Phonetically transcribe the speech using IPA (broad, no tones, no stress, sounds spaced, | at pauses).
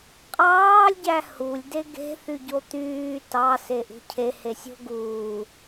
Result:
qʼ ɑː lʲ ɟ æ h u lʲ d e ɡ e̤ θ y ɟ o t̪ yː t ɑ s e ʔ ṳ cʰ e h e sʲ o̤ ɡ uː